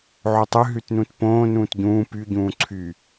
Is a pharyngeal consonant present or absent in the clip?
present